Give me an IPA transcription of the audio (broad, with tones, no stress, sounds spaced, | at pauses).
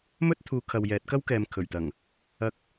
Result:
m ɵ˥ t̚ t̪ʰ uː˨˧ kʰ ɐ˨ w j ɛː˨˥ t̚ k ɐ˥ w k ɛː˨ m kʰ ɵ˨˩ ɥ t̪ ɐ˨˩ ŋ | ɐ˧ k̚